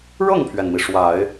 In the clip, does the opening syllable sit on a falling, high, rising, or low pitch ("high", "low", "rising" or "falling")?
falling